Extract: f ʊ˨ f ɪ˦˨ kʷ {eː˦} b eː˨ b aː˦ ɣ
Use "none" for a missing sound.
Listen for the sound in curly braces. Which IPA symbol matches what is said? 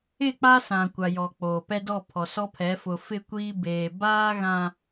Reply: iː˦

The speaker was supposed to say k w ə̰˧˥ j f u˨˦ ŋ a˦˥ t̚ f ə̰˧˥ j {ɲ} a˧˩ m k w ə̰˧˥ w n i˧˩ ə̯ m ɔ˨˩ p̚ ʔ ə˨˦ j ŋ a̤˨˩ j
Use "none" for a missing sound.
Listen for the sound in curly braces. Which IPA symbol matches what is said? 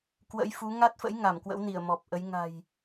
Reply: ŋ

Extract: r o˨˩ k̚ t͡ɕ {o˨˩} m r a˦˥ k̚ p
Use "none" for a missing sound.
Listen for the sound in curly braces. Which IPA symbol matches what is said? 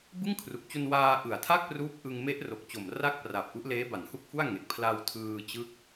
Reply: o˨˩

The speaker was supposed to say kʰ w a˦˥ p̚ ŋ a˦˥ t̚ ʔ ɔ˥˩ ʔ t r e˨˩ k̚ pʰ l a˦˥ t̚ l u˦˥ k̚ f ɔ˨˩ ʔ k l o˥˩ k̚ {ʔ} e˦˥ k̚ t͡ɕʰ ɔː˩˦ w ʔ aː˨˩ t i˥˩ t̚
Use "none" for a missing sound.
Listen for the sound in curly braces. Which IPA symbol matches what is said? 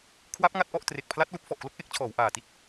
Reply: ʔ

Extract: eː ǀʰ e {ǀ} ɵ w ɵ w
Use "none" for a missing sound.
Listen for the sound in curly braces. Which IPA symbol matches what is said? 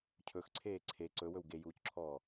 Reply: ǀ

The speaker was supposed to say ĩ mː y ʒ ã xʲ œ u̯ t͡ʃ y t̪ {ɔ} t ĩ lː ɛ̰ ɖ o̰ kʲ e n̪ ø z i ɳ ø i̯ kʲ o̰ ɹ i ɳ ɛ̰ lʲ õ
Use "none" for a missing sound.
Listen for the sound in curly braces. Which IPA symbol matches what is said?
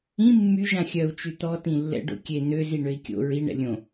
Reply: ɔ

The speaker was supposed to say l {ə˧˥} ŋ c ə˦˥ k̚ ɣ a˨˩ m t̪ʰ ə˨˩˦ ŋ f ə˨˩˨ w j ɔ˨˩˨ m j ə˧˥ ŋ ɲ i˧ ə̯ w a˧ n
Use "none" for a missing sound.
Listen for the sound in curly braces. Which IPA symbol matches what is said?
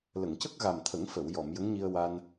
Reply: ə˨˩˨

